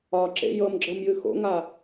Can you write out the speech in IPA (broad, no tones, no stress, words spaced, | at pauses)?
ɒǁḛ jɤmɡ͡ǁɤmjɨ xo̰ŋa